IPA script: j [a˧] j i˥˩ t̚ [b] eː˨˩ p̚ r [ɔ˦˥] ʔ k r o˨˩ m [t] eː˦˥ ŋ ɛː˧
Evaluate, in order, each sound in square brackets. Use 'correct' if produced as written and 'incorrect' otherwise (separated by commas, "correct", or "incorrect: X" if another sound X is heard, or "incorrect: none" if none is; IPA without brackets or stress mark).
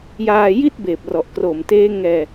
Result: incorrect: aː˧, correct, incorrect: ɔ˨˩, correct